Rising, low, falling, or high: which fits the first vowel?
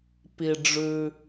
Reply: low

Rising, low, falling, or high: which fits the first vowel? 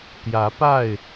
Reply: rising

